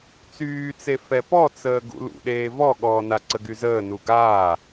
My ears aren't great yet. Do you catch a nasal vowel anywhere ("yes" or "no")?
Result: no